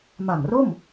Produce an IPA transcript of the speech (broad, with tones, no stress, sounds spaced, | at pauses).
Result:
m a˨˩ ŋ r o˥˩ m